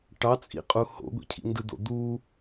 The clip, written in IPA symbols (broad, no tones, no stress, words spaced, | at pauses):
ʈɑt͡sʼḭqʼu ho̰ɡʷḭcʰḭ ndɯd̪o̰d̪u